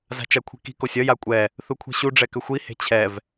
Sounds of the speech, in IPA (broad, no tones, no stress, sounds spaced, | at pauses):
z a̤ t͡ʃ a kʷʰ i̤ k i̤ k o sʲ ʌ j a kʷʼ ɛ | θ u kʷʰ i̤ ɕ u ɖ͡ʐ ɛ k ʏ xʷ i h e̤ t͡ɕʰ ɛ v